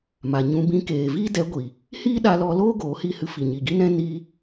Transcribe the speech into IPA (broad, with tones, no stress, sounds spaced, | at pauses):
m a˨ ɲ ũ˧ b ĩ˧ k eː˨ v iː˦ d ɛ˨˦ ɡʷ i˨ | h iː˦ ɗ a˧ l ɔ˧ l oː˦ ɡ oː˨˦ h i˦ h ɨ˧ f i˨ ɲ i˨ ɡ i˦ n ɛ̃˦ n iː˦